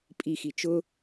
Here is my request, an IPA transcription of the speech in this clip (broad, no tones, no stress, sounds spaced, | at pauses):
pʼ i x i t͡ʃ ʊ